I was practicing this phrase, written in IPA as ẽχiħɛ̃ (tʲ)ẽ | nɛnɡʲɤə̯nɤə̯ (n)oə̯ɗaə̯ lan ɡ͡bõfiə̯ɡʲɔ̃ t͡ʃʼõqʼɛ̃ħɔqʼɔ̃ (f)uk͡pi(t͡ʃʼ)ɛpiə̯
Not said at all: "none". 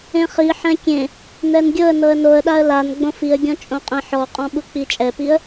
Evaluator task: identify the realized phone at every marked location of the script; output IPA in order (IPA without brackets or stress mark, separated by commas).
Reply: kʲ, n, ɓ, t͡ʃʼ